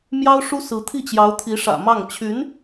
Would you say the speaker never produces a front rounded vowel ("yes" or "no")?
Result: no